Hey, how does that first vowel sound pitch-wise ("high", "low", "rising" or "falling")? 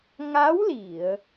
rising